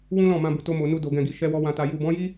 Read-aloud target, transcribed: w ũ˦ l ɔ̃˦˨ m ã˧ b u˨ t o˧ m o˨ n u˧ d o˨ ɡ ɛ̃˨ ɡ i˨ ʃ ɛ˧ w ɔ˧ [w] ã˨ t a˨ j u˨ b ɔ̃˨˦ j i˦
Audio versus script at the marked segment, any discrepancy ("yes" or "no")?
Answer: no